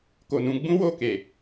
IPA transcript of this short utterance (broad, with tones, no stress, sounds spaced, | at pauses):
k o˨ n ũ˧ ɡ͡b ũ˦ w o˦˨ k e˨